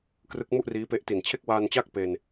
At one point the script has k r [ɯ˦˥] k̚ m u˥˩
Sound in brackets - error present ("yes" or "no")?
no